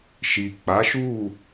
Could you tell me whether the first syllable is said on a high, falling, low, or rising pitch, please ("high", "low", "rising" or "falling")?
low